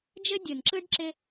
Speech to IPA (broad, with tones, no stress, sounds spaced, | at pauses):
d͡ʒ ɘ˦ dʲ ɯ˨ n ǁ ɯ˦ ɖ ǁ ɪ˦